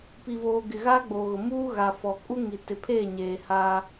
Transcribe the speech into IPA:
pi˨voː˨ ɡɪ˨ɣaː˦ɡ͡boː˨ɣʊ˨ muː˦ɣa˨fɔ˨ kʼu˦ŋi˨ tɪ˨pʰeː˦˨ɲeː˨ ha˦

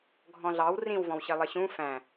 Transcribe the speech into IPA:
ɡʱɔ̃ɮɑw rĩwvɔ̃wɕi lˠəɕũ fæ̃

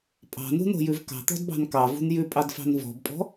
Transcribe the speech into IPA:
pʼɑ̤nṳno̤jʉv kɑ̤t̪ɔ̤dbɑ̤n kɑvṳn jʉpʼɑdfɑ̤n vɔ̤bpʼɔ̤

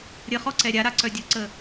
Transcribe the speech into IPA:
ɾʲəχɔǀɛ ɾʲaɾaǀœ dʲuǀə

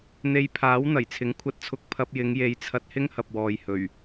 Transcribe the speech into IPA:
n̪e˧jpʰaː˨˥w n̪ɐ˨˩j t͡sʰɪ˨˥ŋkʷʰɐ˧t̚t͡sʰʊ˧k̚ pʰɐ˧p̚jɪ˨˧ŋje˨˧jt͡sʰɐ˧t̚ hɪ˥ŋhɐ˨p̚wɔː˨j hɵ˨˩ɥ

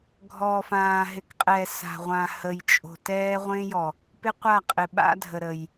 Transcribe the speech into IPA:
ɡʱɔː˨fãː˨ɦɪ˨kqʼɛ˨ sa̤˨ ʁʷã˨hə˨jt͡ʃʼo̤˨tɛː˦ ʁʷẽ˦jɔ˨ | pɪ˦qʷa˦˨qʼɪ˨ ɓa̰˦dʱə˨ɾə˨j

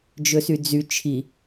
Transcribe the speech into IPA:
d͡ʒɵsyd͡zy t͡ʃʰi

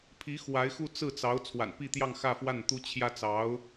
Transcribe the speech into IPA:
pʰi˧˥ xwa˧˥ɪ̯xu˥˧ t͡sɹ̩˥˩t͡sɑ˧˥ʊ̯ t͡sʰwa̰˨˩npi˥˧t̪jɑ˥˧ŋ xä˥˧fwa˥˩n t̪u˥t͡ɕʰjä˥ t͡sɑ˧˥ʊ̯

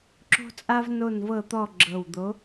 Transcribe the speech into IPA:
ǁo̤˦t͡sʼa˦v no˦˨nvɤ˦˨t̪ɔ˦˨ ɡ͡ǁɤ˨˩wd̪o˨˥

